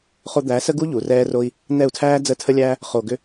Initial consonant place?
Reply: uvular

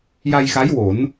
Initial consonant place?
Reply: palatal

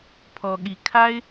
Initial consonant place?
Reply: labial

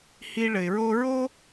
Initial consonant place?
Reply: glottal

